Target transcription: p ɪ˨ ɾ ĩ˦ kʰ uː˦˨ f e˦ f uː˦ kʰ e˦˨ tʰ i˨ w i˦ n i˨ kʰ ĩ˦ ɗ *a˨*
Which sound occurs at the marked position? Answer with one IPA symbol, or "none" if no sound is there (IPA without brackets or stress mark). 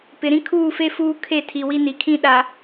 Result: a˨